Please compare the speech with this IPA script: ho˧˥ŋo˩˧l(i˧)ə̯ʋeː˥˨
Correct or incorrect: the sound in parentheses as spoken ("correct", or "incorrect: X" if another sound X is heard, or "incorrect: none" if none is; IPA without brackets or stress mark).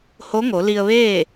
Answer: correct